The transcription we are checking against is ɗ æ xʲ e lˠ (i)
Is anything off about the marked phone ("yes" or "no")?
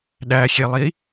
no